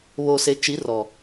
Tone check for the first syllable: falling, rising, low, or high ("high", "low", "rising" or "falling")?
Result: low